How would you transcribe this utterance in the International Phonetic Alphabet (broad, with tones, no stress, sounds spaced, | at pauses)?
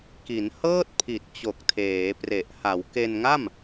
k i˩˦ n h ɤː˥˩ t̚ pʰ i˨˩ t̚ t͡ɕ o˨˩ k̚ tʰ eː˩˦ p r e˨˩ ʔ h a˩˦ w k e˧ n ŋ a˥˩ m